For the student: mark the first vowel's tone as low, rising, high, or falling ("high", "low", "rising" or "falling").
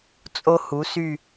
high